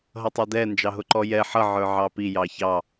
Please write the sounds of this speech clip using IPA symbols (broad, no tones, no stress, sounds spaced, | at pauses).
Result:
ɦ ʌ tˤ ɑ d ɛ n d͡ʒ ɑ ɦ ʊ ǃ ɔ j ɛ ħ ʌ ʕ ə˞ ʕ ɑ p i j ɑ ç ɑ